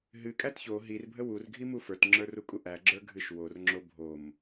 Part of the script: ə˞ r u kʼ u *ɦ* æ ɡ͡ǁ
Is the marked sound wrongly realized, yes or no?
yes